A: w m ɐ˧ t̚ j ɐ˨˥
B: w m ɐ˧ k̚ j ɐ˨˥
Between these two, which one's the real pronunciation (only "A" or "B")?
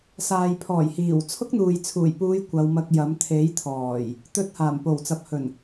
B